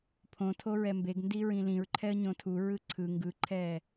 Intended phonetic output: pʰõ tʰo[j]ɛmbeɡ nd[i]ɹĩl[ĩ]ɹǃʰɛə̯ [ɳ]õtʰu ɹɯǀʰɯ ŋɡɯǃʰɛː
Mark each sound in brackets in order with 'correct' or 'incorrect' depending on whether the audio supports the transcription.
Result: incorrect, correct, correct, incorrect

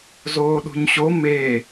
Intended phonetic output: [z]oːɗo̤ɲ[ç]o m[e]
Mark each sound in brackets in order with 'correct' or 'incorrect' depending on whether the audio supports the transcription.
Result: correct, incorrect, correct

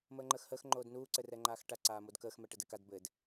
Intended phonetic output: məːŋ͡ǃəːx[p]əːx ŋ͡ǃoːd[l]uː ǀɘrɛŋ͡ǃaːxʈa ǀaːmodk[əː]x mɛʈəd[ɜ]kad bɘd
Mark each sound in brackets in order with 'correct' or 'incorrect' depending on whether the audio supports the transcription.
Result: incorrect, incorrect, correct, incorrect

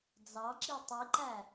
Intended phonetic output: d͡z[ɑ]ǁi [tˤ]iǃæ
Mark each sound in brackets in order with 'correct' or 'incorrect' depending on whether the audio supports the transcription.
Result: correct, correct

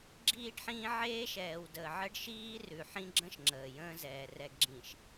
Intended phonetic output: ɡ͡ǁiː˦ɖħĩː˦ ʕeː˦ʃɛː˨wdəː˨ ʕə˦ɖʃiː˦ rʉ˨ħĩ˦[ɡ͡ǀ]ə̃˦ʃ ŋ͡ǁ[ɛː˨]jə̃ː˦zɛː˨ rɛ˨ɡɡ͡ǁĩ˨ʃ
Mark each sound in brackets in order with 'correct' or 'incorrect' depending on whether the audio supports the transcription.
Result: incorrect, incorrect

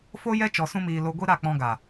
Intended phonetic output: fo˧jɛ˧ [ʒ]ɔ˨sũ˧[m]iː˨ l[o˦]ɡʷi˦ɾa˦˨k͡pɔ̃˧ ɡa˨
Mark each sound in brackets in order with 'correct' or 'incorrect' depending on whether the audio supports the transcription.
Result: incorrect, correct, incorrect

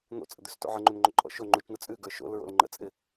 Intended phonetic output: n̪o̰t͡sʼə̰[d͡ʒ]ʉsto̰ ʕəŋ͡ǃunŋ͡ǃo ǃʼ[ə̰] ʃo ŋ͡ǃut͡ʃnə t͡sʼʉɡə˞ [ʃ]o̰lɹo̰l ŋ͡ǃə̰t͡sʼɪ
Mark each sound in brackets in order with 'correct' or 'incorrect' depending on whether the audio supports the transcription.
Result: incorrect, incorrect, correct

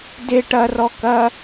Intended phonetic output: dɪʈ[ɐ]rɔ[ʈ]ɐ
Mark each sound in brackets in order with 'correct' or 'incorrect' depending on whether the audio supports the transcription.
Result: correct, incorrect

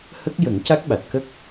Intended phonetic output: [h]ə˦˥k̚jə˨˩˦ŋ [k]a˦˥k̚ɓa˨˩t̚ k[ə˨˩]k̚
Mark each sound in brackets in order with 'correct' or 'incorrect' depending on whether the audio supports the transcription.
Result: correct, incorrect, incorrect

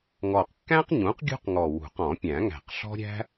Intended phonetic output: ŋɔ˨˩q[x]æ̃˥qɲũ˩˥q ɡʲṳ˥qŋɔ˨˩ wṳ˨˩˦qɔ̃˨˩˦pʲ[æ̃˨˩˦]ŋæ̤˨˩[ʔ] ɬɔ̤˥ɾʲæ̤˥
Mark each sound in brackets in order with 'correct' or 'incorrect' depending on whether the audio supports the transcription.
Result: incorrect, correct, incorrect

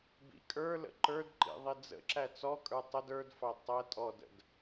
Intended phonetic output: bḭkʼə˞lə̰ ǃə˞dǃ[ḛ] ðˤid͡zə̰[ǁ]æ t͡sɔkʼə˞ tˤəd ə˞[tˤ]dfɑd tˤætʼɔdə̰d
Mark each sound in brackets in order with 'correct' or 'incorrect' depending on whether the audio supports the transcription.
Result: incorrect, correct, incorrect

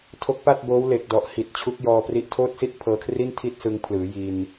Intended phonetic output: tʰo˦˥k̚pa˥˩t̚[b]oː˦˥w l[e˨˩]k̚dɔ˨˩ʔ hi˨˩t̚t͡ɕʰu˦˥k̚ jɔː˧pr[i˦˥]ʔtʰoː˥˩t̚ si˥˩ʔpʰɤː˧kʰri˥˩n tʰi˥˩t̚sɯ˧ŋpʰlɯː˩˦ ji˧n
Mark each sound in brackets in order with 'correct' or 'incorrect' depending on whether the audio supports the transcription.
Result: correct, correct, correct

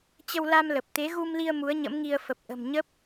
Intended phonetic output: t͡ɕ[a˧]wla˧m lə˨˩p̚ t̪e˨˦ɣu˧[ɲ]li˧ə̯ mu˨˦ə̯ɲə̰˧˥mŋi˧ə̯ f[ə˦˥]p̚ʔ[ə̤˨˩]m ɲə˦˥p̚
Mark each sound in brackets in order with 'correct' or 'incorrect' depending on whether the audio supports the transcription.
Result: incorrect, incorrect, incorrect, correct

